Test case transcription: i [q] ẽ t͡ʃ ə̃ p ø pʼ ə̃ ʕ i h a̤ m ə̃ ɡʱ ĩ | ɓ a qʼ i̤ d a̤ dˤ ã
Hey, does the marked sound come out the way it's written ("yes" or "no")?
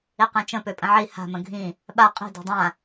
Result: yes